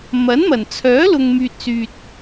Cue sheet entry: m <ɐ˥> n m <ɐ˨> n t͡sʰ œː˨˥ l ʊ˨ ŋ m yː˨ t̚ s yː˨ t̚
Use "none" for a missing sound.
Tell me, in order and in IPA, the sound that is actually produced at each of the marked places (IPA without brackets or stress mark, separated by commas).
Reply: ɐ˨˥, ɐ˨˩